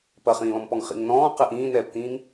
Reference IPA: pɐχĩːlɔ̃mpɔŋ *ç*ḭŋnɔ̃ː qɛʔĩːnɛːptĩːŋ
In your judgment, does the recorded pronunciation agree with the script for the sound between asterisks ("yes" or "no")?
no